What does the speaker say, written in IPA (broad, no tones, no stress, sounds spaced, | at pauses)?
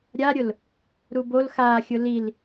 ɾʲ a ɾʲ ʊ l | ɾ u b o l x a xʲ ʊ l i l